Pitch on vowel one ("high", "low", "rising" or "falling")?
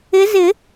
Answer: rising